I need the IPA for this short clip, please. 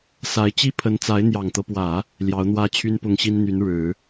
s a˧˥ ɪ̯ t͡ɕ i˥ pʰ ə˧˥ n t͡s a˧˥ ɪ̯ n̪ j ɑ˨˩ ŋ t̪ ɤ˦ p w ä˨˩˦ | l j ɑ˧˥ ʊ̯ n̪ w ä˥ t͡ɕʰ y˥ n p ʊ˥˩ ŋ ɕ i˥ n n̪ y˧˥ n ɻ ɻ̩˨˩˦

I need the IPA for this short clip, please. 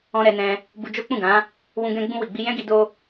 ɔ̃˧ ɾ ɛ˧ n ɛ̃˧ | b u˧ d͡ʒ o˦ k͡p ũ˦˨ ɡ ã˨˦ | w ũ˧ ɡ ɛ̃˧ ɡ͡b ũ˧ w i˨ ɡ͡b i˧ j ɛ̃˦ ɡ i˧ d o˧

